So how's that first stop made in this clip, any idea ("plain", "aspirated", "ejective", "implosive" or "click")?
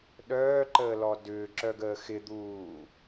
implosive